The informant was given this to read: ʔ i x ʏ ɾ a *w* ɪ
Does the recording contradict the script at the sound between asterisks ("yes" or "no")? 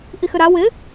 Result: no